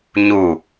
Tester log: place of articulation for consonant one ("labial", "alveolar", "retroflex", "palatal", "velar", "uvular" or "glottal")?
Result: palatal